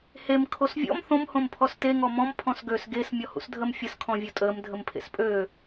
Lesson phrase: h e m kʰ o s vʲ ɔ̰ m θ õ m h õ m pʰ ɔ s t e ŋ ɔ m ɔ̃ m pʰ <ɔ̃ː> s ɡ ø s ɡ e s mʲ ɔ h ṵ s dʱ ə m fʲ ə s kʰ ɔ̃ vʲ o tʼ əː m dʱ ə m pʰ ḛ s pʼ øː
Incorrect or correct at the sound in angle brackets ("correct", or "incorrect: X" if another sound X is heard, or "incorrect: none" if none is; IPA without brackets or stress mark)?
incorrect: ɔ̃